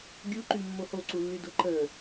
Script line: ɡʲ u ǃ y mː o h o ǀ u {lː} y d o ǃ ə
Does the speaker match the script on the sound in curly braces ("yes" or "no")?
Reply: yes